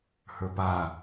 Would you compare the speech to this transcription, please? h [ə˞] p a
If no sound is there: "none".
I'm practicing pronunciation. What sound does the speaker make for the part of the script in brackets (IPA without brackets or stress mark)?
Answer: ə˞